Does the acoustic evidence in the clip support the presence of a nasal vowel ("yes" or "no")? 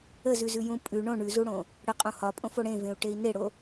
yes